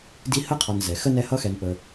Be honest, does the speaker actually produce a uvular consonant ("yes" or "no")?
yes